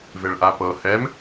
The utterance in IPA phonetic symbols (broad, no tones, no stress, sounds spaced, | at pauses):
v e ɭ ʔ a p ɤ h ɛ m